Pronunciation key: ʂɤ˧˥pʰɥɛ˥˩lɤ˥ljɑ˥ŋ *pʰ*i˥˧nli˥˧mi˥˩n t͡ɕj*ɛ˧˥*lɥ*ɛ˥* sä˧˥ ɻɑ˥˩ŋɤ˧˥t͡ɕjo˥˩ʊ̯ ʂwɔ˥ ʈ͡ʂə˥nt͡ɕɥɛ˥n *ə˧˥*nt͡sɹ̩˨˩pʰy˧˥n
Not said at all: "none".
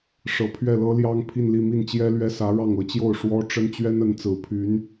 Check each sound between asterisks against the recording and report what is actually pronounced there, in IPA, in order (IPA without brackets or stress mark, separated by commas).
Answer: pʰ, ɛ˥, ɛ˥, ə˧˥